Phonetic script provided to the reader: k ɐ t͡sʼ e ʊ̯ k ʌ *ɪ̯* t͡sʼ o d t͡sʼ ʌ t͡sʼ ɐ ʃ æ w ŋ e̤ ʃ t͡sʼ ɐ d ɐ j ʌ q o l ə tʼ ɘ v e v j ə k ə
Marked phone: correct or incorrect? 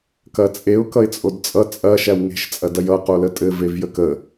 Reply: correct